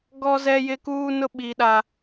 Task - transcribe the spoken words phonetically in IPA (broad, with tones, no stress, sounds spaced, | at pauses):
ɡ ɔ˦ z ɛ˦ j ɪ˦ k uː˦ n ʊ˦ ɓ i˨ ɗ a˨